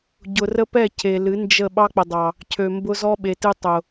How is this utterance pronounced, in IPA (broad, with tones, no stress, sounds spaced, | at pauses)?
ɟ ʊ˨ r ə˦ p ɛ˦˨ cʰ e˨ l ɨ˨˦ n d͡ʒ ə˦˨ ɓ ɑ˦ k͡p ə˨ dˤ ɑ˨ | cʰ ø˨ m b ʊ˦ z ɔ˦ ɓ e˨ t ɨ˦ tˤ ʊ˨